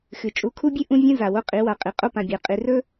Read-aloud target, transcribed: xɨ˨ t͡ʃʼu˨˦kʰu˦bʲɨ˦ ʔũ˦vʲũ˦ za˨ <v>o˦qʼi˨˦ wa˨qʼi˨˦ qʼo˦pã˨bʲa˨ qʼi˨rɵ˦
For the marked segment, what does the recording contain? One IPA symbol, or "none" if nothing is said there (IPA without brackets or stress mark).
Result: w